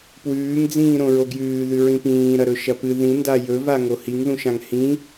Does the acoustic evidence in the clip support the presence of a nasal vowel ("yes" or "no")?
yes